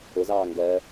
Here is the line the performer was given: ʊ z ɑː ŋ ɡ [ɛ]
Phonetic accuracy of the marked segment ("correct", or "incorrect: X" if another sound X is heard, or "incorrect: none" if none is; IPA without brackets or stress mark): incorrect: ɜ